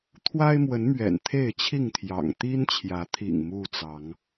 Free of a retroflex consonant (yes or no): yes